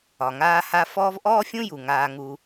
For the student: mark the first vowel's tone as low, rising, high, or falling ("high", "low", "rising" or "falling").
low